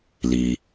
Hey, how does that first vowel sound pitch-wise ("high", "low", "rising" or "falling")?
low